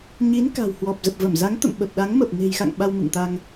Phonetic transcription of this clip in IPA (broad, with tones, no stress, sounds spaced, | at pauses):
ɲ i˨˦ n k a̤˨˩ w h w ɔ˨˩ p̚ z ə˨˩ p̚ v ə˧˩ m z a˨˦ ŋ t̪ ə̰˧˨ m ɓ ə˨˩ p̚ ɗ a˨˦ ŋ m ə˨˩ p̚ n e̤˨˩ j x a̰˧˨ ŋ ɓ a˧ w m ɨ̰˧˨ ŋ t̪ a˧ ŋ